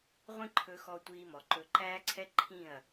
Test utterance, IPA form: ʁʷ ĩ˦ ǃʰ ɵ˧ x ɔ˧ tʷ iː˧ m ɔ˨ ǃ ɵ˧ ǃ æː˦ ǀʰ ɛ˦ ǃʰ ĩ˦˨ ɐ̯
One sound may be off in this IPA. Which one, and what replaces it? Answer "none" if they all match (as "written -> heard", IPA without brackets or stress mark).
none